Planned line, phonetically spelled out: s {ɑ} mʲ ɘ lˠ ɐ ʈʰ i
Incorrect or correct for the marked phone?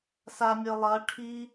incorrect: a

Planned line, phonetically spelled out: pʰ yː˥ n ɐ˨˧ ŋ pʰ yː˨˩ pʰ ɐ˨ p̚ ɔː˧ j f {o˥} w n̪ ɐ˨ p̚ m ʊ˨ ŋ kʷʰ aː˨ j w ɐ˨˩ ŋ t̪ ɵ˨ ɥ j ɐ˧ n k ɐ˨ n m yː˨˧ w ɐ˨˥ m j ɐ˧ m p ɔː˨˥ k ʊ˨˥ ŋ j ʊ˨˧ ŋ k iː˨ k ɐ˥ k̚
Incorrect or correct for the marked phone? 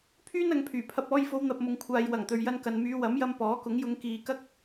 incorrect: o˨˧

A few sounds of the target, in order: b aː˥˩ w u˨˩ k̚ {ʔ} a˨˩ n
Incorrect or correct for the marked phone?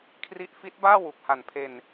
incorrect: h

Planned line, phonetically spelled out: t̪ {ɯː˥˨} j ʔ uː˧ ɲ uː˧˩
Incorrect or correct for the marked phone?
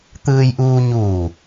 incorrect: ɯː˧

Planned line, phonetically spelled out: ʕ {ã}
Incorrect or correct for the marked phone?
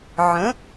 incorrect: ə̃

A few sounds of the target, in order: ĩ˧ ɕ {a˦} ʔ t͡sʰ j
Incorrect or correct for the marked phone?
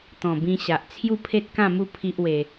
incorrect: a˨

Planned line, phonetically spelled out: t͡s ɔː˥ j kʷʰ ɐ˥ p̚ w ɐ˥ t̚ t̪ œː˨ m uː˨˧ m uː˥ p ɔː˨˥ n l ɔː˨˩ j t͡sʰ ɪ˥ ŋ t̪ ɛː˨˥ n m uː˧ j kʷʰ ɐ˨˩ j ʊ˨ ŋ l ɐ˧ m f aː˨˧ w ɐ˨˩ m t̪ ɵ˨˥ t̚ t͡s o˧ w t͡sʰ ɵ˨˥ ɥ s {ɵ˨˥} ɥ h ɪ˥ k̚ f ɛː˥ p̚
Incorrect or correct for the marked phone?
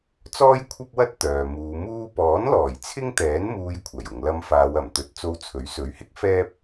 correct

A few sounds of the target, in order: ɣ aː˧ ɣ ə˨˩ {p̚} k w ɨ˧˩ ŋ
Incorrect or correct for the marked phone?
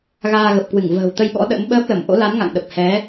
correct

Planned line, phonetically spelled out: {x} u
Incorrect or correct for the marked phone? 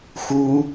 correct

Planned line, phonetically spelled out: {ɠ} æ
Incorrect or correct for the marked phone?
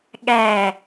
correct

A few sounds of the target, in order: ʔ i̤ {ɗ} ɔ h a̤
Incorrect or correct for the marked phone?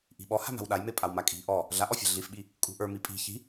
incorrect: ɓ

